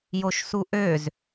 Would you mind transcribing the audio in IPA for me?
j o ʃ s u ʔ ø z

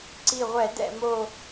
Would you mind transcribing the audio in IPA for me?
ǀ i˧˩ ʁʷ ɛ˧˩˧ d ɛ̰˧˩ m o˧˩

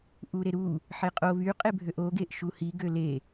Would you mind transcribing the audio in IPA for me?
ʔ u ɾ e ɾ u | ħ e qʼ o β y qʼ e bʱ ø ʔ o ɡ e ʔ ʃ u h i ɡ ø l e

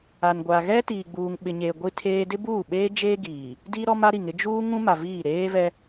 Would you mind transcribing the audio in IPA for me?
a˨ n ɡʷ a˨ ɣ ɛ˦ t iː˨ ɡ͡b uː˨ ŋ ɓ ɪ˨ ɲ eː˨ ɡʷ i˦ tʰ eː˦ d ɪ˦ b uː˦˨ ɓ eː˦ d͡ʒ eː˦ ɡ iː˨ | d i˦ ɾ ɔ˦ m a˦ ɾ i˨ ŋ ɪ˦ d͡ʒ uː˦ ŋ ũ˦ m a˨ v iː˦˨ ɾ eː˦ v ɛ˦

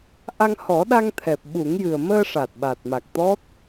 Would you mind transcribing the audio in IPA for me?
ʔ a˧ ŋ h ɔ˨˩˦ ɗ a˧ ŋ t̪ʰ ɛ˨˩ p̚ ɓ u˨˩˦ ŋ j ɨ˨˩ ə̯ m əː˧ ʂ a˨˩ t̚ ɓ a˨˩ t̚ m a˨˩ k̚ t̪ ɔ˦˥ t̚

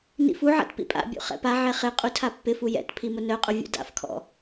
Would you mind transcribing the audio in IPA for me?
n ḭ f u ʕ a̰ t p ḭ pʼ a̰ bʲ ṵ χ ɛ̰ p a ʕ ɛ χ ɪ qʼ u tʰ a pː ɪ f u j ɛ̰ t pʰ i m ʊ n œ qʼ ʊ vʲ ṵ d a̰ f kʰ ɔ̰

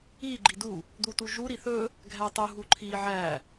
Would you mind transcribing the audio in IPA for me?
i ɡ͡ǃ i d u | d̪ u t u ʒ u ɾ i θ ɵ | ɡʱ æ tˤ u ɦ u ǃʰ i ʕ æ

